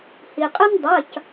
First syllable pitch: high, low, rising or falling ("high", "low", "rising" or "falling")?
low